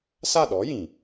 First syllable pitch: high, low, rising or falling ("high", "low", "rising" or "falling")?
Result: falling